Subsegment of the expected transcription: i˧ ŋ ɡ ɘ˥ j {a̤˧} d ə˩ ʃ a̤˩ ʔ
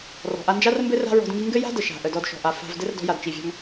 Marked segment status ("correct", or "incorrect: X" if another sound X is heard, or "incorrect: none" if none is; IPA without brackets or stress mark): incorrect: a̤˥